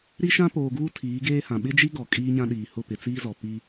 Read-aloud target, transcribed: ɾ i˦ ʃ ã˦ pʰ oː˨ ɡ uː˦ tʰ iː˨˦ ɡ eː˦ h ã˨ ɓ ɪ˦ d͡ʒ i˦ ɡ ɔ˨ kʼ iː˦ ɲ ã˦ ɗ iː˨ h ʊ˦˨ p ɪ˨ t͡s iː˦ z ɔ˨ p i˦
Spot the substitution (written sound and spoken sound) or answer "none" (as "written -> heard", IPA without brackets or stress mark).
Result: pʰ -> p